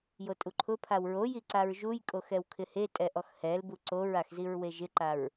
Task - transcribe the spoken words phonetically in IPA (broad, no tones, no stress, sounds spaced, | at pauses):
j o tʼ u ǃʰ ʊ pʰ a w ɹ o j i ǀ a ɹ ʒ u j kʼ o x ɛ w kʰ ɪ h e tʼ ɛ ʔ ɔ x h ɛ l b u ǀ o ɹ a x z i ɹ w e ʒ ɪ ǃ a ɹ